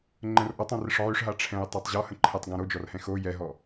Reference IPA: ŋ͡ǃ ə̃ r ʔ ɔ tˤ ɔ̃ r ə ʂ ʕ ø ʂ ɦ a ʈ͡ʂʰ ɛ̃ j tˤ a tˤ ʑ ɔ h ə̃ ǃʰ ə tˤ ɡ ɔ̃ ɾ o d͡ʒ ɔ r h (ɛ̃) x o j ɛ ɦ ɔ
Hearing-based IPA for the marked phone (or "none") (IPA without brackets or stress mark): ɛ̃